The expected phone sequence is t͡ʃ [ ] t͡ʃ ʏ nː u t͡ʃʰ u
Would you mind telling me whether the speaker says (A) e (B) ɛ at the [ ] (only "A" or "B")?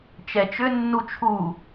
B